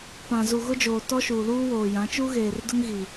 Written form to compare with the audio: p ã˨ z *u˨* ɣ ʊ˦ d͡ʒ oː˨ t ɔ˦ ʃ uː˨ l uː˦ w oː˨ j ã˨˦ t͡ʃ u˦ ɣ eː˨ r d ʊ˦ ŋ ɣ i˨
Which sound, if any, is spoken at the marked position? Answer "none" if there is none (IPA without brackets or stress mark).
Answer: u˨